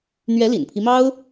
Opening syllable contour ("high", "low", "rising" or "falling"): rising